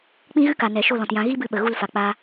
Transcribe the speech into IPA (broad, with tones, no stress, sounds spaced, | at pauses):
k͡p ĩ˦ ɣ ɨ˦ k a˨ n ɛ˨ ʃ o˦˨ l ɔ̃˨ t j ã˧ ɣ i˦ b ɨ˧ ɓ ə˨ ɣ u˦˨ l f a˨ k͡p a˦